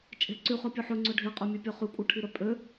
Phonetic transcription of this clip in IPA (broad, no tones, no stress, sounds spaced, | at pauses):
t͡ʃʼ e̤ ǀ y χ ø pʲ ʉ ħ ø ŋ͡ǀ ø ɖʱ e qʼ ø mʲ ø pʲ œ χ y kʷʼ œ ʈʰ i ɾ œ pʼ ø